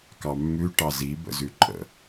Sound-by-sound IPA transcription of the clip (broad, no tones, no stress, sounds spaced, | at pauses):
k ɑ mː ʉ ʈ ɑ z i b ə̰ z ʉ ǃʼ ə̰